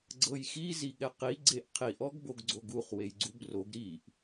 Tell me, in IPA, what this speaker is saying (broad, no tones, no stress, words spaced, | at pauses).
ɡ͡ǀɤjxi ziɠɛqi ɡ͡ǀeʔqʰiʔ ɔɡboɡɡ͡ǀoɡuχ wejɡ͡ǀubroɡ ɾiʔ